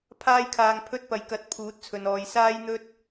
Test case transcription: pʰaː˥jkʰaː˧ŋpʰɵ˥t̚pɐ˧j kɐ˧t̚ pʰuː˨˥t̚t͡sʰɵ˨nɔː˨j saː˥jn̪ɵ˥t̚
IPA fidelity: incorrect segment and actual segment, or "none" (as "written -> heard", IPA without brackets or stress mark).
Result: none